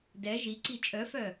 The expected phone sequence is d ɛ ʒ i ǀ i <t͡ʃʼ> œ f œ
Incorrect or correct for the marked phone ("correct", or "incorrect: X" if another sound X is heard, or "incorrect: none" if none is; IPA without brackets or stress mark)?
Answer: correct